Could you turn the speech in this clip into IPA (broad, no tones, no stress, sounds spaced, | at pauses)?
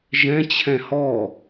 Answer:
ʒ ɛ̃ t͡ɕʰ ɛ̃ h ɔ